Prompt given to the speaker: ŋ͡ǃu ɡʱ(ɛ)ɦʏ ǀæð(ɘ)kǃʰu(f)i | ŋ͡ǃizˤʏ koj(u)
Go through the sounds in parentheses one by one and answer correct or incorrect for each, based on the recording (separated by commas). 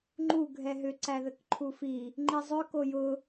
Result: correct, correct, correct, incorrect